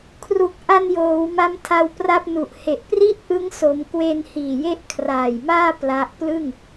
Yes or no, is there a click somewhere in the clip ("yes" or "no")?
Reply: no